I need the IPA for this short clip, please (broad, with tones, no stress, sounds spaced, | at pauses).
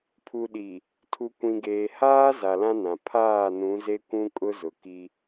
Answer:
pʰ u˨ ɗ i˨ | tʰ u˨ kʷ ĩ˨ ɡ eː˨ h aː˦ z a˨ l ã˦ n ã˨ pʰ aː˦˨ n ũ˨˦ z e˦ kʷ ũ˦ kʼ ʊ˦ z ʊ˨ k i˦